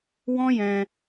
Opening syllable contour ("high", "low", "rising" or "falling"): high